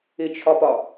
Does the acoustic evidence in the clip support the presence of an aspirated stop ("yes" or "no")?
yes